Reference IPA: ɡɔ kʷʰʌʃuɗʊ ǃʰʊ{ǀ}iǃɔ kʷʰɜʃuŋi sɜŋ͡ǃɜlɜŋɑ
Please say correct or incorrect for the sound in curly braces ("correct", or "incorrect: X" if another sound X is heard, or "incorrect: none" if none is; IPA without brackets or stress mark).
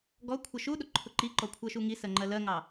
incorrect: ǃ